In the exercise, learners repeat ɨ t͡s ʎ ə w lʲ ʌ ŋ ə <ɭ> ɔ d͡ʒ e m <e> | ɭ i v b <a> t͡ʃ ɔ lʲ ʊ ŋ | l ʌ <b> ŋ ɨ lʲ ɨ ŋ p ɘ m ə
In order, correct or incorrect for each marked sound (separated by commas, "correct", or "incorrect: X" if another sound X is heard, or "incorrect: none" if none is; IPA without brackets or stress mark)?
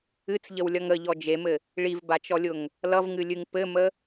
incorrect: ʎ, incorrect: ɘ, correct, incorrect: v